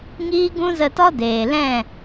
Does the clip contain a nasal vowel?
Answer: yes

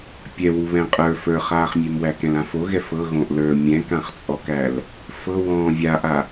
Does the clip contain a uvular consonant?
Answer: yes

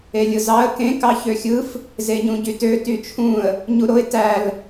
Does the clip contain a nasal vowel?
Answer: yes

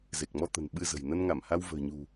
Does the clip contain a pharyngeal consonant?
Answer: no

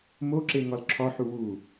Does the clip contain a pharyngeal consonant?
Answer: yes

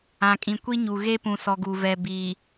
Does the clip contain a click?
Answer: no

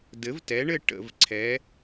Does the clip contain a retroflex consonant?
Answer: yes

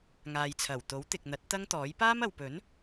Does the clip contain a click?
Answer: no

